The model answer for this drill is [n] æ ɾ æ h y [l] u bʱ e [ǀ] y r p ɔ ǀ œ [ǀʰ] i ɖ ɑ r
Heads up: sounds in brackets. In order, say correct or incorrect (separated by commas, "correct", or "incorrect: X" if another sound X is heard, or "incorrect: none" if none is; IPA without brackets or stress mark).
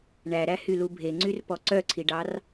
incorrect: ɳ, correct, incorrect: ŋ͡ǀ, correct